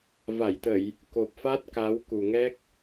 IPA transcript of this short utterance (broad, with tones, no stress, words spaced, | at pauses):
va˧˩jt̪ə˧˩˨j | ko˨˩p̚fa˦˥t̚ ka˨˦wku˨˩ŋɛ˦˥k̚